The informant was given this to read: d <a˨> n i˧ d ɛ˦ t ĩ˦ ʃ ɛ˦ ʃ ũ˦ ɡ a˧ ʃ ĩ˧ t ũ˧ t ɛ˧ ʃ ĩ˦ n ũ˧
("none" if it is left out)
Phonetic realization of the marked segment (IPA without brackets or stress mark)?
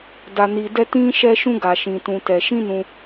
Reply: a˧